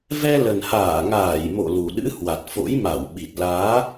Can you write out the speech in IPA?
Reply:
vɛ˧lə˨˩nhaː˧˩ŋaː˧˩j mo̰˧˨lu˨˩ɗɨ̰˧˥ hwa˨˩t̚fo̰˧˥j ma˧˩wɓi˨˩t̚ laː˨˦

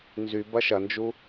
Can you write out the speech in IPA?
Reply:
nzy bɐʃɐnd͡ʒu

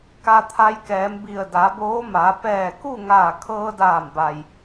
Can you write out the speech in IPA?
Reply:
ka˩ t̪ʰa˧jkɛː˩˧mbi˧˩ə̯ da˩˧boː˧˥maː˩˧ pɛː˧˩ku˥˨ŋaː˧˩ kʰɤː˧daː˧˩mba˩j

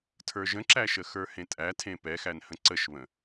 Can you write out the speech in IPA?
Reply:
tʰə˞ʒə̃ǁæʃə xə˞hẽtʼæ tʰẽpɛxæn hə̃ǀəʃβə̃

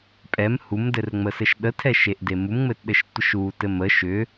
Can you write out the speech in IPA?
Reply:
pʼɛm humdɘrŋ͡məsɘʃ ɗətʰɛʃeʔde mumŋ͡mɘtɗɘʃtʷəʃ utɘ mə ʃʏ

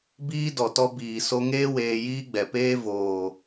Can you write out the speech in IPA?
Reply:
biː˦dɔ˨tɔ˧ biː˨ so˧ŋeː˦ weː˧jiː˦ɡ͡bɛ˨ peː˦ voː˨

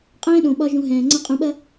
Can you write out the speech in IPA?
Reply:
qʼɛ̃ː˦ɗõ˨ɓɒ˧ ʒũ˧ɦɛ̃ː˨ ŋ͡ǀɐ̃˦qʼũ˧ɓɐ˦

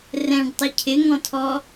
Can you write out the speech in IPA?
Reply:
rɛ̃ɖtˤɪ cʰɪŋɔ̃tʰɔ

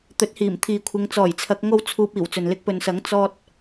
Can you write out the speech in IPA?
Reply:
t̪ɵ˨˥t̚hiː˨˩m t̪ʰiː˨kʷʰɪ˨˧ŋ t͡sɔː˨˩jt͡sʰɐ˨˥k̚ ŋo˥wt͡sʰuː˧p̚iː˨˩w t͡sɵ˨nlɪ˥k̚ pɵ˨nsɐ˨˥ŋ t͡sɔː˧t̚

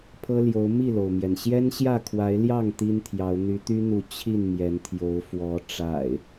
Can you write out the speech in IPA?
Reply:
pʰɤ˦ljo˨˦ʊ̯ mi˥˨lo˩ʊ̯mjɛ˩n ɕjɛ˦nɕjä˥˨kʰwa˨˦ɪ̯ljɑ˥˨ŋ t̪i˦nt̪ʰjɑ˨˦ʊ̯ n̪y˨˦t̪y˦n̪u˨˦ t͡ɕʰi˥˨n mjɛ˨˦nt̪ʰjo˨˦ʊ̯ fwɔ˨˦ ʈ͡ʂa̰˨˩ɪ̯

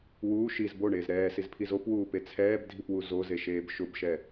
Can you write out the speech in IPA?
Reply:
wuː ʃiz boɳeːz ɾɛːsizpʰiz opwuːpe t͡sʰɛːbdʱipwu zozeʃeːb ʃʊbʃɛ

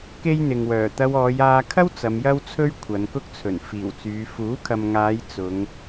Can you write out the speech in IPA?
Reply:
ke˥jn̪ɪ˨ŋwœː˨˩ t̪ɐ˧wɔː˨˧jaː˧kʰɐ˥w t͡sɐ˨˧mjɐ˥wt͡sʰɵ˥ɥ kʷʰɐ˨˧nkʊ˥k̚t͡sʰɵ˨˩n fiː˨˩wt͡syː˨˧ fuː˨˥kʰɐ˨mŋaː˨˧j t͡sʊ˨˧ŋ

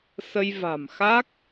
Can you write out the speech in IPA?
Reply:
sə˧jva̤˨˩mxa˦˥k̚

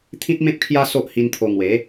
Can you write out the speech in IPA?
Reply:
t̪ʰĩ˦t̚mẽ˦p̚kʰja˦ so˦ʔ hi˧n t̪ʰo˧ ŋwe˨˦

